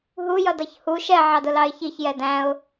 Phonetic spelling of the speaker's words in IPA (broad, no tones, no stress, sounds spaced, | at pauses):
ɦ u j ʌ d ʌ ç h u ʃ ɛ ʕ ɑ d ʊ l ɑ ɪ̯ ç i ç j ɛ d æ̃ ʊ̯